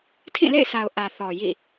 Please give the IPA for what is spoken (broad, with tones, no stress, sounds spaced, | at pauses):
tʰ ĩ˦˨ l ḛ˦˨ ɪ̯ s a˨ ʊ̯ ʔ ä˨ θ ɔ˨ j ḭ˦˨